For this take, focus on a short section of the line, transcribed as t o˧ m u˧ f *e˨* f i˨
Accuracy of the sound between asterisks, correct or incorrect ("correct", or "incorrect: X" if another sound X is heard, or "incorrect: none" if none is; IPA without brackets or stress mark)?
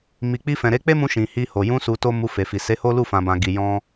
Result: correct